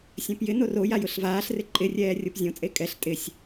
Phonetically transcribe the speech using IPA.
sʲ ɛ̃ p j ɪ n o r o j a j ʊ ɬ v aː ɬ r ɪ ǃʼ ɪ rʲ ɛː rʲ o p zʲ õ t͡sʼ e kʼ ɛ ɬ tʼ ɪ sʲ

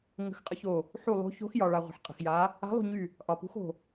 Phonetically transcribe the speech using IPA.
ŋ ə̤˦˨ x qʼ ə˧˥ ç o˦˨ | ħ u˦˨ lˠ o̤˧˥ ç o̤˧˥ x j ɒ˨ ɭ a˨ ʁʷ ə̤˨ ħ qʼ ə̤˨ x j a˧˥ | a̤˧˥ lˠ ṳ˦˨ ɲ y˦˨ | ʔ ɒ˨ p ṳ˧˥ x o̤˦˨

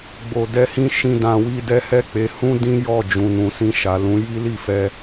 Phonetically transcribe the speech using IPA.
ɡ͡b o˧ d ɛ˦ h ĩ˦ ʃ ĩ˦ d ã˧ w i˦ d ɛ˦ h ɛ˦ k͡p e˧ h ũ˦ d ĩ˦ j ɔ˦˨ d͡ʒ ũ˨ n ũ˨ s ĩ˧ ʃ a˨ l ũ˨˦ j i˦ l i˦˨ f ɛ˧

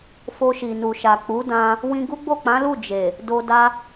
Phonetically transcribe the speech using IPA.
f o˧ ʃ i˨ n u˨ ʃ a˨ k͡p u˨˦ d ã˧ | w ĩ˧ ɡ u˦ ɡ͡b o˦˨ k͡p ã˨˦ l u˦˨ d͡ʒ e˨ | d o˧ d a˦

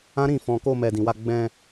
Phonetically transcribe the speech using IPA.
ã˦ ɾ ĩ˦˨ f ɔ̃˧ k o˧ m ɛ˨ d ĩ˨ w a˧ ɡ͡b ɛ̃˧

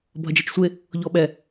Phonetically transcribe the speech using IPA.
bʱ ɐ d͡ʒ ɛ t͡ʃ sʷ e | ʎ ɔ ɓ ɛ

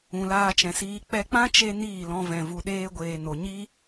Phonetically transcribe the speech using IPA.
ũ˨ l aː˧ t͡ʃ ɛ̃˨ s iː˧ k͡p ɛ˧ k͡p ã˦ t͡ʃ e˧ n iː˦˨ l ɔ̃˧ v ɛ̃˨ v u˨ ɗ eː˧ ɡʷ eː˨ n o˨ ɲ i˦

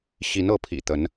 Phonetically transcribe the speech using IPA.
ɕ i˨˦ n ɤ˨˦ pʰ ḭ˨˩ t̪ ə˨˦ n

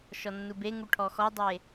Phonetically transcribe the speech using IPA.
ʃ ɔ nː u b e ŋ u ʈʰ ɔ x ɔ dˤ e

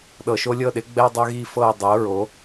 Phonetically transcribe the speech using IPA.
ɗ ɤ˨ ʃ o˦ lʲ ɤ˦˨ ɗ ɪ˩˥ ɡ͡b ɛ˦ dˤ ø˦ ɣ i˦˨ f ɤ˦˨ ʊ̯ dˤ ɪ˩˥ ʊ̯ ɹ o˩˥

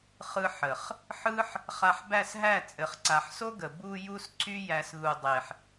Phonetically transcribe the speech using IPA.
χ ɯ˧ ħ ə˨ χ | ħ ɯ˦ ħ | χ a˧ ħ b æ˦˨ s ɦ æ˦˨ t͡sʼ ɘ˨ χ ǀ a˨ ħ s o˦ ɡ ə˨ b u˧ j u˧ s ǀ y˧ j æ˧ s ð u˨ dˤ e˨ ħ

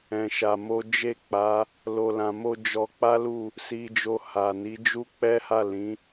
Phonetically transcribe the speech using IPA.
ɛ̃˧ ʃ a˧ m o˦ d͡ʒ e˦˨ k͡p a˨˦ | l o˧ l ã˨ m o˧ d͡ʒ ɔ˧ k͡p a˦ l u˦˨ | s i˧ d͡ʒ o˧ h a˨ n i˨˦ d͡ʒ u˦ k͡p ɛ˦ h a˦˨ l ĩ˨˦

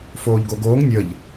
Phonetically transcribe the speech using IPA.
f oː ʎ ɡ o ɡ oː ŋ nʲ ə ʎ

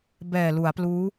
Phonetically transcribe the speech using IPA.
b ɛː˨˩ l u˩˦ a̯ p l uː˦˥

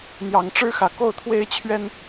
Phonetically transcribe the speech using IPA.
n̪ j ɑ˨˦ ŋ ʈ͡ʂ ɻ̩˦ x ä˨˩ k o˥˨ ʊ̯ t̪ʰ w e˦ ɪ̯ t͡ɕʰ ɥ ɛ˦ n

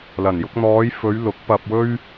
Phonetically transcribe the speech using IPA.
l ɐ˨˩ n j ʊ˧ k̚ n̪ ɔː˨˧ j f ɵ˨˧ ɥ l ʊ˨˥ k̚ p ɐ˧ p̚ w ɵ˥ ɥ

